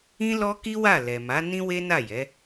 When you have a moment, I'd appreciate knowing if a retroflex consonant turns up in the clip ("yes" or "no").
no